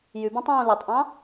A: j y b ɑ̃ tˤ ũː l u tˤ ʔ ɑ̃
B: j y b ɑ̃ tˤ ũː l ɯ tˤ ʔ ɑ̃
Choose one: B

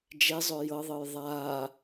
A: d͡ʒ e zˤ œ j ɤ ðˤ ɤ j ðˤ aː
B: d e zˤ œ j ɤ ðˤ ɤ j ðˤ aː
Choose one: A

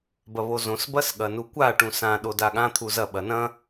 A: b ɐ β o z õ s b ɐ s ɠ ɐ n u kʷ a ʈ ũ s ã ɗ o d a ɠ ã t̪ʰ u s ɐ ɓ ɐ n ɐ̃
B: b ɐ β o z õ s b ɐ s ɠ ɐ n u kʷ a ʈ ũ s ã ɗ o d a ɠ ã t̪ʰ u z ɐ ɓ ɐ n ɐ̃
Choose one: B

